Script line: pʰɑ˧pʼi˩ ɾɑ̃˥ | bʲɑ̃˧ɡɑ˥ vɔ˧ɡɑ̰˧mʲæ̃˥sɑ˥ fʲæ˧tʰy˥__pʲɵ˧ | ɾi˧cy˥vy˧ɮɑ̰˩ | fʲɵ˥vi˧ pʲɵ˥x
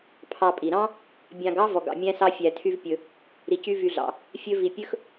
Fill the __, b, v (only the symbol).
v